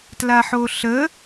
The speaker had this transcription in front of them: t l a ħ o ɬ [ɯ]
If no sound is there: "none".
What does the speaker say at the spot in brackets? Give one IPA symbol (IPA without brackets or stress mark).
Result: ə